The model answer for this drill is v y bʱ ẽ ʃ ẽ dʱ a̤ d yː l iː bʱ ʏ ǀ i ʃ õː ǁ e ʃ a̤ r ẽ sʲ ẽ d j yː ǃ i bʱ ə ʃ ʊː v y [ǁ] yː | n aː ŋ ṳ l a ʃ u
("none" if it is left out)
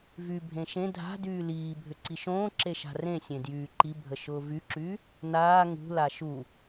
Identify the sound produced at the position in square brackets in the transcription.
ǁ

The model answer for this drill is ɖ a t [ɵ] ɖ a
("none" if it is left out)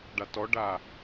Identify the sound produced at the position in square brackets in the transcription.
ɔ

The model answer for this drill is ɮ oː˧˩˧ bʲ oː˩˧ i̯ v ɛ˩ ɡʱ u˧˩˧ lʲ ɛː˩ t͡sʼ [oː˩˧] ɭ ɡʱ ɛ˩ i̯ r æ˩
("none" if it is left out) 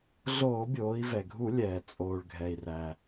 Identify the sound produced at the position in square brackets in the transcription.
oː˩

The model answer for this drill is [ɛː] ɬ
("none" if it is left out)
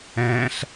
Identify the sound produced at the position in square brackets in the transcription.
ɛ̃ː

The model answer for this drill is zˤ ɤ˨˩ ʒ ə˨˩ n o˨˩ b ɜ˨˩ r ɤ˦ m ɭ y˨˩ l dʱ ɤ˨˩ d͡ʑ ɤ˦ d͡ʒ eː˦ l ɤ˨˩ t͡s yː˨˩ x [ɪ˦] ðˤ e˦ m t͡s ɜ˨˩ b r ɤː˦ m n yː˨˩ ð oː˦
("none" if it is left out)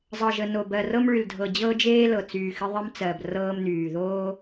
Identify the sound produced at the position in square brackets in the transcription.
ɪ˦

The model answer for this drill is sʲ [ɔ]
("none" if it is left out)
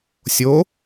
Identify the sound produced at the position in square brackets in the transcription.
o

